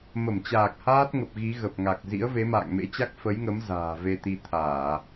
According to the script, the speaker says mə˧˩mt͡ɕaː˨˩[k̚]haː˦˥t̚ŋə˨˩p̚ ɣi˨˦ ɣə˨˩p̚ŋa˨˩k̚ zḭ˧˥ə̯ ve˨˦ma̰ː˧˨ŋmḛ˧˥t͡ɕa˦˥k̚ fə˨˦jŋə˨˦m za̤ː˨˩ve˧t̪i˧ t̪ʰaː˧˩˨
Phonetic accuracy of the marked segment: correct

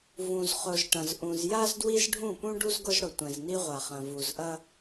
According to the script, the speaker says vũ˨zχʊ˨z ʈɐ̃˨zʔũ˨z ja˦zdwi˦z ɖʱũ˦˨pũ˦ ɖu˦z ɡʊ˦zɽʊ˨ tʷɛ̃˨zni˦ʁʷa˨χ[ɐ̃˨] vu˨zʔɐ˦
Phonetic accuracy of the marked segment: correct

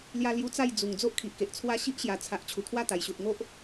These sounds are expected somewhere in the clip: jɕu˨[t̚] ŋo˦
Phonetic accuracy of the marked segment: correct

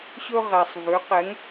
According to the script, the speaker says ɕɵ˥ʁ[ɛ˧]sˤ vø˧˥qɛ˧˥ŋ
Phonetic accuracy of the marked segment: correct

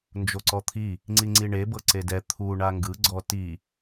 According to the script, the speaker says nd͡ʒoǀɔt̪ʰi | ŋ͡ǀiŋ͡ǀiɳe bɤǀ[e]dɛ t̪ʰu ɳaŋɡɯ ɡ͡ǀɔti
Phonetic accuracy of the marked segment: correct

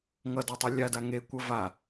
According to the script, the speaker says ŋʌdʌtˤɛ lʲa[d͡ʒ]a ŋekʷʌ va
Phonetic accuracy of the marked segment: incorrect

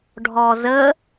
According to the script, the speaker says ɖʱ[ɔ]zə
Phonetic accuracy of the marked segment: correct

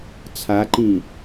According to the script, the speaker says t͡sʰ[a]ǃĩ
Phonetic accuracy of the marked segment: correct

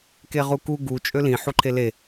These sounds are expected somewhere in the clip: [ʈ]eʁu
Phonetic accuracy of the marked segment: incorrect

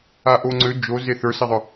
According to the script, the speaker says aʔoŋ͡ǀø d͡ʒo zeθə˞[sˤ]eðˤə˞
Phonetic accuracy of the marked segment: incorrect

